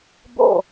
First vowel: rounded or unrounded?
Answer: rounded